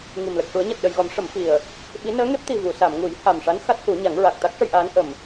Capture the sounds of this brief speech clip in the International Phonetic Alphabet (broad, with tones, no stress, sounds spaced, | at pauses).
ŋ i˨˩ m l ə˨˩ k̚ ʂ u˨˩˦ ə̯ ɲ a˨˩ t̚ ɗ ə˨˩ j ɣ ɔ˨˩˦ m ʂ ə˨˩˦ m f i˨˩ ə̯ | ɓ i˧˥ n əː˧˥ ŋ e˦˥ p̚ t̪ i˨˩ v u˨˩˨ s a˨˩˨ m ŋ u˨˩˦ j h a˨˩ m ʂ a˧˥ n x a˦˥ t̚ h u˨˩˦ ɲ a˨˩˦ ŋ ɹ a˨˩ k̚ t̪ a˦˥ k̚ ʂ ə˧ j ʔ aː˧˥ n ʔ ə˨˩ m